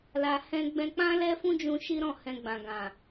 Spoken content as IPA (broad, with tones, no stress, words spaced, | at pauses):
la˧hɛ̃˦ ɡ͡bɛ̃˧k͡pã˦ lɛ˦fũ˦d͡ʒũ˧ ʃi˦ɾɔ̃˦˨ hɛ̃˧ ɡ͡bã˨ɡã˨